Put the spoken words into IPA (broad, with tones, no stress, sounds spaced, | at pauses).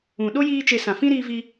ũ˨ ɗ o˦ j iː˦ t͡ʃ e˧ s ã˨ f ĩ˦ ɾ iː˧ v i˧